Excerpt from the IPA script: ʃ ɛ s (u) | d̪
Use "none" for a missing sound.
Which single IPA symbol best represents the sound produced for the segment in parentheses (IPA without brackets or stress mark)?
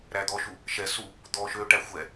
u